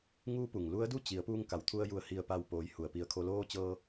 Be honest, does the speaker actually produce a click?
no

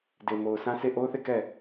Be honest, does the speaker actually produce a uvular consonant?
no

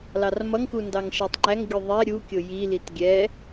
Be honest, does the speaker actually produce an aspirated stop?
no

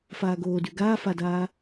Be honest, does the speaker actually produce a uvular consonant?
no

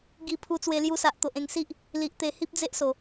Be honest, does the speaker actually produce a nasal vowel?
yes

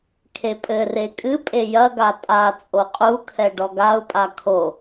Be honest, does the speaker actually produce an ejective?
yes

